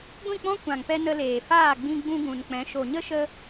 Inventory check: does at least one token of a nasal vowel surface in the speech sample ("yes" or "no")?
yes